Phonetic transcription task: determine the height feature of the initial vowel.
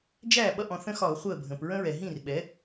low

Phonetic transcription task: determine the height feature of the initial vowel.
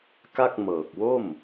low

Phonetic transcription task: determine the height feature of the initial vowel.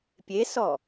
mid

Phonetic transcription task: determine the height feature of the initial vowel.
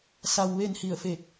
low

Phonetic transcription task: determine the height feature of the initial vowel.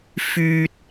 high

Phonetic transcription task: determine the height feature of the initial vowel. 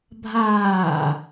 low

